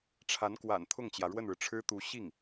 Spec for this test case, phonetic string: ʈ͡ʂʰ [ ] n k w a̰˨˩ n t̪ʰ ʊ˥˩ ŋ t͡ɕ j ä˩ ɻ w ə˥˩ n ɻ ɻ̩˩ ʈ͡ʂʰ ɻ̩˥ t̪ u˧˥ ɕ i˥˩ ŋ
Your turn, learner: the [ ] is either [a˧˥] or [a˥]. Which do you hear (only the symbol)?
a˧˥